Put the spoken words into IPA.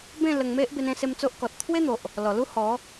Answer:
bẽ˥˧lə˧ŋme˦ʔ be˦nẽ˦se˦mt͡so˦ʔ kɔ˨t̚ t̪ʰwe˦n̪o˨ʔ | lɔ˨˩lu˦ hɔ˨˦

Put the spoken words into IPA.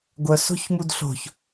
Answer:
ɡʷœso̤çmud ɬo̤ç

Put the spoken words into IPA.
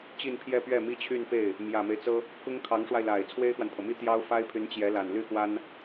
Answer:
t͡ɕi˥˧npʰjɛ˥˧ pɥɛ˥˩mi˥t͡ɕʰy˥˧npe˥˩ɪ̯ | mjä˨˩me˦ɪ̯t͡sɤ˥ | kʊ˥ŋkʰɑ˧˥ŋʂwa˧ɪ̯la˨˩ɪ̯ t͡sʰwe˥ɪ̯xwa˨npʰɤ˩mi˥ t̪jɑ˥ʊ̯fa˥ɪ̯pʰy˧˥n t͡ɕjɛ˧˥la˨˩n ly˥˩xwa˥n

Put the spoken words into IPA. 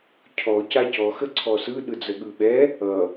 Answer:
cʰɔ cacɔ xəǀʰɔsɯ ɗɯd͡zəɠɯɓɛ | ʌ

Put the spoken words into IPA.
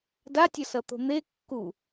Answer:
datʲʌsʌt̪o̤ n̪e kːu

